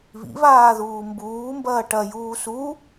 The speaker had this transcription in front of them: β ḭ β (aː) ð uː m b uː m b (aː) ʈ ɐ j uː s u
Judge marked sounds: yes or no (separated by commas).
yes, no